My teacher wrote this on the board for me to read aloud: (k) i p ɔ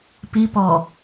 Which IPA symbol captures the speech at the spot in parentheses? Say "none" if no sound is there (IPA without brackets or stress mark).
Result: p